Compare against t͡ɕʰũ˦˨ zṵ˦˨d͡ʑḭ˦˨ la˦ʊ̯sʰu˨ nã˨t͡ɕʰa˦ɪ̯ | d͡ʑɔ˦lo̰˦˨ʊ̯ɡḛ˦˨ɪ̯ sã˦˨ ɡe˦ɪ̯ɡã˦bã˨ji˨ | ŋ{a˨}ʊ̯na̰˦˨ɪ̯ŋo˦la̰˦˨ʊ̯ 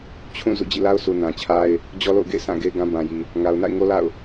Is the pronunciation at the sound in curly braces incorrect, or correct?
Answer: correct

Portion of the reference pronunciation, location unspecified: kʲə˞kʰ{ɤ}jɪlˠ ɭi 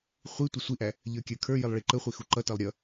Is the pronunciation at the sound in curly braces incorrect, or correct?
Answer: incorrect: ə˞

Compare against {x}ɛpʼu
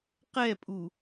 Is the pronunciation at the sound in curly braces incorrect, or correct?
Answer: incorrect: q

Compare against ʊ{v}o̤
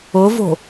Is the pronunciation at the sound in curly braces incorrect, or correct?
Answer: correct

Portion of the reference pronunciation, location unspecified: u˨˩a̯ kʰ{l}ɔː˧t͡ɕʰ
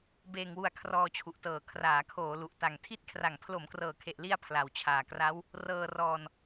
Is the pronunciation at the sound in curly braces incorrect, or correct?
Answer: incorrect: r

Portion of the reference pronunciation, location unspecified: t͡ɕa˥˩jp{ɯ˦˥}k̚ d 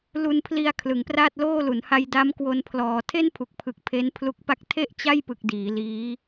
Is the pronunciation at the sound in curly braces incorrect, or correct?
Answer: incorrect: ɯ˨˩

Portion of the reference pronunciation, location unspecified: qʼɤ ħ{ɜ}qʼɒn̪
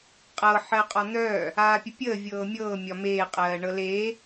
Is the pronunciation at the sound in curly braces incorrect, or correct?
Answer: correct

